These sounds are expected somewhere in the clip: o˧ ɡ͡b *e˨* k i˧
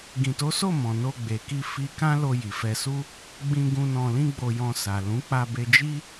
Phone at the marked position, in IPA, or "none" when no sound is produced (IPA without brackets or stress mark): e˨